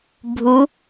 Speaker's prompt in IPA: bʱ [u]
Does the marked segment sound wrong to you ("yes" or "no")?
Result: no